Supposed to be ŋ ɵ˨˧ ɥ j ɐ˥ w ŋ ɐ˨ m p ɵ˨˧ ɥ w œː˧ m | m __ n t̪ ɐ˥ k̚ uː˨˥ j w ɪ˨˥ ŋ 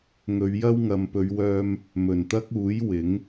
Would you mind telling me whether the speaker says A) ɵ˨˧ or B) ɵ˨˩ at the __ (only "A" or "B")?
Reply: B